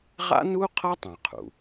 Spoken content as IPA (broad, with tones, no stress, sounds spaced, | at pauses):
ʁ a̰˥ n u˥ qʰ ʌ˥ tˤ ɛ̃˩ qʰ ṵ˩